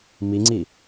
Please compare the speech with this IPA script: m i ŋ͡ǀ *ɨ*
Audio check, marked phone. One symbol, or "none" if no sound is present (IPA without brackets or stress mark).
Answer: i